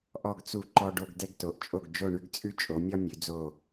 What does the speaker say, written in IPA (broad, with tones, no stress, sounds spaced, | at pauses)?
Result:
ʔ ɔ˦˨ ɡ t͡s u˦˨ ǃ ɔ˦ ɖ o˦ ɡ d ɛ˦ ɡ t o˩˧ ʔ t͡ʃʼ o˦˨ ɡ d͡ʒ o˦˨ ɳ ʉ˦ ɡ t͡sʼ ʉ˦ t͡ʃʼ o˩˧ mʲ ɒ˦ mʲ ʉ˩˧ d͡z o˦˨